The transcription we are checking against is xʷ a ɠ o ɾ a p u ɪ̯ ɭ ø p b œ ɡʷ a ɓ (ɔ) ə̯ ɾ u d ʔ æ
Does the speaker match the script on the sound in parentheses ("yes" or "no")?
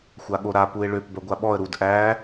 yes